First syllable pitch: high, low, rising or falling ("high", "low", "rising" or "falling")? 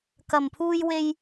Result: low